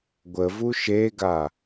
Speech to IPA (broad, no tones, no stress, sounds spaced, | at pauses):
ɡʷ ə v u ʃ e ɡ a